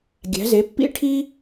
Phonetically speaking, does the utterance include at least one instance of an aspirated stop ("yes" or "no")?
yes